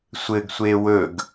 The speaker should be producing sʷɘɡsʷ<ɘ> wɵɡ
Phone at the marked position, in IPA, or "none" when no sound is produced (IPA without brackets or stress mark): e